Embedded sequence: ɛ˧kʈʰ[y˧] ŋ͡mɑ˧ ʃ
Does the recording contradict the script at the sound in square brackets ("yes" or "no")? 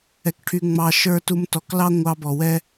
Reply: no